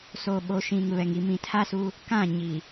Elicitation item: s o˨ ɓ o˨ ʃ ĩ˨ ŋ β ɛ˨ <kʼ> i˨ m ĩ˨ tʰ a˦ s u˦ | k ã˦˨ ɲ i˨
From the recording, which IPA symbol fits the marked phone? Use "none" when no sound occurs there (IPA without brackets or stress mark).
ŋ